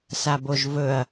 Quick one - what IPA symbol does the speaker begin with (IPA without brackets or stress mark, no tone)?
s